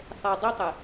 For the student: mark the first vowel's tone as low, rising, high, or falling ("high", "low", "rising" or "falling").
low